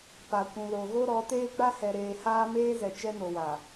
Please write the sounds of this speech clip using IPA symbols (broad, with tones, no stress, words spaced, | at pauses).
pa˨kʷũ˨ lo˨ɣo˦ɾɔ˨˦teː˦ ɡ͡ba˦hɛ˨ɾeː˨ haː˦meː˦zɛ˨ t͡ʃɛ˦no˨wa˨